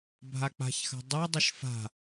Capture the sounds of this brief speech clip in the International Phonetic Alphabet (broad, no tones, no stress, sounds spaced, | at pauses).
bʱ a k͡p a̤ ç x a̤ dˤ ɤ dˤ ə ʃ f a̤